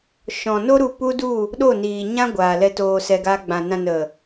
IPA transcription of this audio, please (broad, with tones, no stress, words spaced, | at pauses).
ʃɔ̃˨no˦ɾu˧ pu˦du˦˨ | ɗo˦˨niː˨ɲã˦ ɡʷaː˨lɛ˧toː˧ sɛ˧ɡaː˧ ɡ͡bã˨nã˧ nə˨